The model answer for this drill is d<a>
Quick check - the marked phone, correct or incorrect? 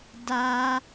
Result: correct